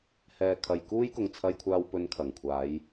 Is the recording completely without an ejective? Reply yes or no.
yes